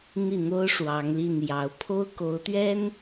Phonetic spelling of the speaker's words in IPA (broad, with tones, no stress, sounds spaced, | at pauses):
n̪ i˥˩ n̪ o˥ ʊ̯ ʂ w ɑ˧˥ ŋ l i˥˩ n j ɑ˧˥ ʊ̯ pʰ o˥ ʊ̯ k o˧˥ ʊ̯ t̪ ɥ ɛ˥ n